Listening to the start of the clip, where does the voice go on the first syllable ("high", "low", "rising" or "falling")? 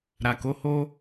low